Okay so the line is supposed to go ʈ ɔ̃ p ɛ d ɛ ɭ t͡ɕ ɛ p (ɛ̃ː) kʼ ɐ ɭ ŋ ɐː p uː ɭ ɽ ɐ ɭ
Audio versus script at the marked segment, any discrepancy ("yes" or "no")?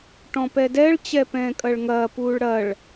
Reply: no